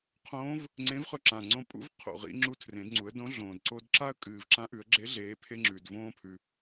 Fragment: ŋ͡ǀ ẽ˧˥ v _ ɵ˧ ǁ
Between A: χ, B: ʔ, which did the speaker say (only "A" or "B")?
A